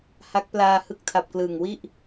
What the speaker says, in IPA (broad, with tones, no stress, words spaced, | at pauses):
ha˦˥k̚plaː˧ hɯ˦˥k̚tʰa˨˩p̚klɯː˨˩ŋwi˥˩ʔ